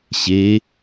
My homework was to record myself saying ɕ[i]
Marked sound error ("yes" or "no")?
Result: yes